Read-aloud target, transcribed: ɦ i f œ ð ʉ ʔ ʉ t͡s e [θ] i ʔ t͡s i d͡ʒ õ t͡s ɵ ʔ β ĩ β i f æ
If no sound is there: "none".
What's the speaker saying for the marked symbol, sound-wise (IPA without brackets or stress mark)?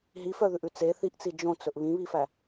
θ